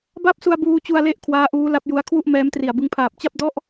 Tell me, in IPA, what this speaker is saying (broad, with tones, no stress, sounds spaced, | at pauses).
b a˥˩ p̚ s u˧ a̯ b uː˧ t͡ɕ u˧ a̯ l e˦˥ ʔ kʰ w aː˦˥ ʔ uː˦˥ l a˦˥ p̚ j u˦˥ a̯ kʰ w u˥˩ ʔ m ɛː˦˥ m t r i˨˩ a̯ b ɯ˧ ŋ pʰ aː˨˩ p̚ t͡ɕ a˥˩ p̚ d ɔ˦˥ ʔ